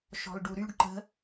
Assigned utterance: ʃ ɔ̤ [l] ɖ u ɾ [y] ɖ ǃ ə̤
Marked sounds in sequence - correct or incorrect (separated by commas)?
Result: correct, correct